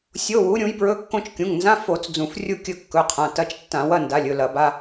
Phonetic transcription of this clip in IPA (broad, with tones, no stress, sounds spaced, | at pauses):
sʲ o˧˥˧ w u˨˥ ɾʲ ũ˨˥ j b ɹ ɵ˧˥˧ kː õ˥˧ t͡ʃ kʲ ũ˩˧˩ ŋ n z ã˧˥˧ f o˧˩˧ t͡s d͡z ũ˧˩˧ f rʲ u˥˧ kʲ ɵ˥˧ kː ɵ˩˧˩ qʰ ã˩˧˩ t ɐ˧˥˧ t͡ʃ tː ã˧˩˧ w ɐ˥˧ n d a˩˧˩ lʲ ɵ˩˧˩ l ɐ˧˩˧ b a˧˥˧